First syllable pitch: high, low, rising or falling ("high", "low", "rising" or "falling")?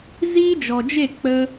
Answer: high